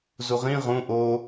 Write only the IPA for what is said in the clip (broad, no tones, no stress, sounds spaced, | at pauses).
z u ʁ ĩ ʁ ũ ʔ o